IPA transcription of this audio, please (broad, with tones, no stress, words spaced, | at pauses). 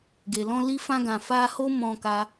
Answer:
ɡe˨lɔ̃˧ li˧fã˧ɡã˨ fa˧ho˦ mɔ̃˧ka˧